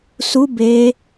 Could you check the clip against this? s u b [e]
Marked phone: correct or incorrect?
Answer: correct